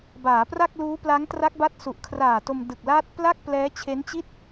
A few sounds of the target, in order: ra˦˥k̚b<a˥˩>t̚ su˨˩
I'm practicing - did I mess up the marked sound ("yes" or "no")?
yes